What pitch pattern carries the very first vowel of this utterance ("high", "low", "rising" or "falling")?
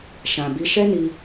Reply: low